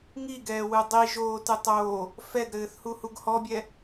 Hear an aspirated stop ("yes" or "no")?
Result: no